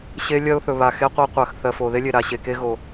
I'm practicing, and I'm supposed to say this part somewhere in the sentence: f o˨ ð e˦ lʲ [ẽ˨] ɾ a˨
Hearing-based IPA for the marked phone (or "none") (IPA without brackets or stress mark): e˨